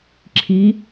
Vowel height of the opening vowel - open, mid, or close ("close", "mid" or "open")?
close